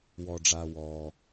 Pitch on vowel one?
low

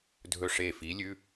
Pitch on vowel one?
falling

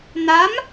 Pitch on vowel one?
rising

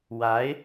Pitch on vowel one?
rising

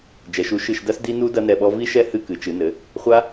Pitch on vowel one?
rising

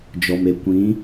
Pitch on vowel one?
low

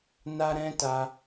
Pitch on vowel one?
high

